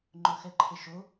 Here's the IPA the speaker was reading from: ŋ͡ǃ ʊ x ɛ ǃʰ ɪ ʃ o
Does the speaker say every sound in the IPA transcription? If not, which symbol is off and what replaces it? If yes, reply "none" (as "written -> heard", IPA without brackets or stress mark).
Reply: none